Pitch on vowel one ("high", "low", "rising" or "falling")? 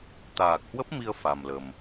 low